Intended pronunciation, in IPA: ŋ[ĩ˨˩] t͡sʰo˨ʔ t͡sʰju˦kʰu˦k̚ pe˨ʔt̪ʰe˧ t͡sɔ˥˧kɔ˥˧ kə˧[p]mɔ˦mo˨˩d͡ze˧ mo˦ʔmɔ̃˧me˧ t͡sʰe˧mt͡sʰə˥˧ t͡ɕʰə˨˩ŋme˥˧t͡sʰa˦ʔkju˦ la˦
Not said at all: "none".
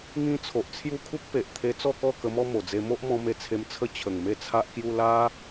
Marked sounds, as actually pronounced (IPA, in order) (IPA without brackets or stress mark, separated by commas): ĩ˦, none